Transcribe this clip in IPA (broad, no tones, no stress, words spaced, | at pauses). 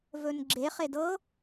vɵnɡ͡ǁeχed ɤ